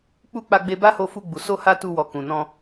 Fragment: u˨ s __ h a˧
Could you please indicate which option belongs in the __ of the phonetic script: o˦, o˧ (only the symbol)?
o˧